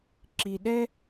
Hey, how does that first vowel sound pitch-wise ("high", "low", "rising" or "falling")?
low